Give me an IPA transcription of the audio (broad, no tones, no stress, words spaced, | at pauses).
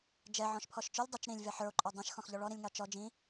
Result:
d͡ʒɛ ʕɔ̃ʃpʰɔʃt͡ʃɵlʲ dˤɵt͡ʃ ɾĩlʲ vɛħə˞o̯ǃʼɔ dˤɛ̃ʃ xɔ̃xʎɔɭɔɾĩlʲ ŋɑt͡ʃɔ d͡ʒĩ